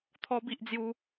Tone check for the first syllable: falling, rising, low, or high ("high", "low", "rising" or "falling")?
high